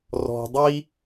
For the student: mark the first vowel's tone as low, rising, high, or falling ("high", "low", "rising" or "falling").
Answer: low